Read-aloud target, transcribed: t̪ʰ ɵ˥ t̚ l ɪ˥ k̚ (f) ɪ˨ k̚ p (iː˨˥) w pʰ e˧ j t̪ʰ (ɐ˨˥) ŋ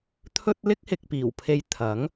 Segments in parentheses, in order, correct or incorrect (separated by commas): incorrect, incorrect, correct